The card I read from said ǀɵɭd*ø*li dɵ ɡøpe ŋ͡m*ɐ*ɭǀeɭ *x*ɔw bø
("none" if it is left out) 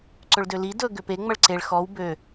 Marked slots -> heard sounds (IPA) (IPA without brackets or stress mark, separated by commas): ø, ɐ, x